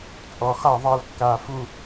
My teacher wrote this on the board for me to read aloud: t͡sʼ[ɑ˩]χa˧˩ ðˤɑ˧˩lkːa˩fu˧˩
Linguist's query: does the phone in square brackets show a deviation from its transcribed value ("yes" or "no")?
yes